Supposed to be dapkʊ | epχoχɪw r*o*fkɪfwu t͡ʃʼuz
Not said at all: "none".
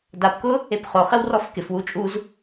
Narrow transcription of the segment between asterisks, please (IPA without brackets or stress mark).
ɔ